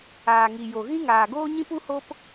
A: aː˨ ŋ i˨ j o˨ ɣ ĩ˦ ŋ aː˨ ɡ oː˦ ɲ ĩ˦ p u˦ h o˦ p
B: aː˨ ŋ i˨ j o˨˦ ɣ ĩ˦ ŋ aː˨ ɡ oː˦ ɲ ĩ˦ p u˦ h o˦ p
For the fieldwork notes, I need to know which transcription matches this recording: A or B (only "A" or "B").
A